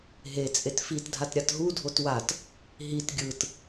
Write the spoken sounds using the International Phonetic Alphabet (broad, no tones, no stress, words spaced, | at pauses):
ɦe t͡sʼetfitdʱat ɾʲatɦudʱot wat | ɦit ɡʲɯt